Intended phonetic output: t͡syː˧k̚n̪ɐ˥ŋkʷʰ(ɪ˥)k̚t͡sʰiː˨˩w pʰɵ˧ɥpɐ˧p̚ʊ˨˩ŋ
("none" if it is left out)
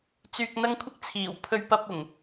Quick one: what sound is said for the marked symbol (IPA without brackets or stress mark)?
ɪ˥